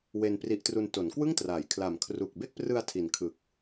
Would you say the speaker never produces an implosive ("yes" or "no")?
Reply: yes